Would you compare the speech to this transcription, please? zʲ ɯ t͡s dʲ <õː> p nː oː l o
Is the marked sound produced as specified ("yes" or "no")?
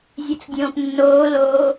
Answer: yes